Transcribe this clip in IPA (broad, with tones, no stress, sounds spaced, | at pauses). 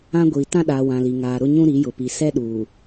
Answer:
ã˦ ɡʷ iː˨ t ã˦ ɗ aː˨ w ã˨ l i˨ ŋ aː˨ ɾ ʊ˦ ɲ ũ˦ ɾ i˨˦ j ʊ˨ p i˨ s ɛ˦ ɗ uː˨